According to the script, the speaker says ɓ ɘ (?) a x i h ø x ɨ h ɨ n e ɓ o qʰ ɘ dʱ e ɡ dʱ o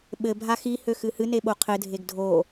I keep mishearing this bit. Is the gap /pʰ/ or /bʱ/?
bʱ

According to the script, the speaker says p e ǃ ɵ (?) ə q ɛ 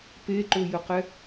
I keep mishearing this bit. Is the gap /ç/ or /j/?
j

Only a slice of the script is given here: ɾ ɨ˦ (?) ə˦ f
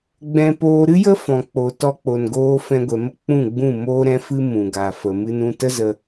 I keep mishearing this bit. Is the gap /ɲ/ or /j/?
j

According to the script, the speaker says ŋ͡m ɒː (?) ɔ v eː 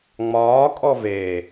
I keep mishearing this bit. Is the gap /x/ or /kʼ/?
kʼ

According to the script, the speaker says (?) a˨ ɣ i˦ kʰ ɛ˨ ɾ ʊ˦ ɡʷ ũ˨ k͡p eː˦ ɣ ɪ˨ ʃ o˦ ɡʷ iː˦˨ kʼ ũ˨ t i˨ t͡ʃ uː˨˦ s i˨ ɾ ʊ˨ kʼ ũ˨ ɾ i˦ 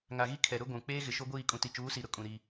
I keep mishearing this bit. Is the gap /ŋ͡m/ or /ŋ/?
ŋ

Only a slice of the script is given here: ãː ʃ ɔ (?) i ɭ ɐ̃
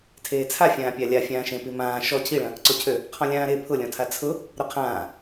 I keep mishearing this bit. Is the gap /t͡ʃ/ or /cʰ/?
cʰ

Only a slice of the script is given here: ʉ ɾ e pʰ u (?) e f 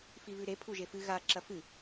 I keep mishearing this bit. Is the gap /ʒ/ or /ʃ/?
ʒ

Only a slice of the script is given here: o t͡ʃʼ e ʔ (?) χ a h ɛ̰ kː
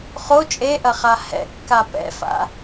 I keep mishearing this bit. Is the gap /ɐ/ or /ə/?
ɐ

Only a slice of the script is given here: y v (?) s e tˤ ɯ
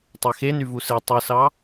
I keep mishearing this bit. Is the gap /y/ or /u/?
u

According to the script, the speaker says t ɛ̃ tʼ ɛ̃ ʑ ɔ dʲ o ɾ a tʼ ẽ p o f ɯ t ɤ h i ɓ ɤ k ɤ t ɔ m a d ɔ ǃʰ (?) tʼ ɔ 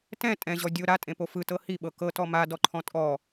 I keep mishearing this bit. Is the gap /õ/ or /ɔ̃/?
ɔ̃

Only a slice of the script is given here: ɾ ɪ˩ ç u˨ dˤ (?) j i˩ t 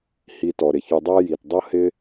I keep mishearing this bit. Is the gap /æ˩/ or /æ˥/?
æ˥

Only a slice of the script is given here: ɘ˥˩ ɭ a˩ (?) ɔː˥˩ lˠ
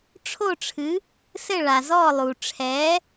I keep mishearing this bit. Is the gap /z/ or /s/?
z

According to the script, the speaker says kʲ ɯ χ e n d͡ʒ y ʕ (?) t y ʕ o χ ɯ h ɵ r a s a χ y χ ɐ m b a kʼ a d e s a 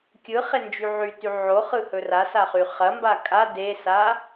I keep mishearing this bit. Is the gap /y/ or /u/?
y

